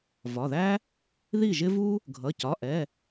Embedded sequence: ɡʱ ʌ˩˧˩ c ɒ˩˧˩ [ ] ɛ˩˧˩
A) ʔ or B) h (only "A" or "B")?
A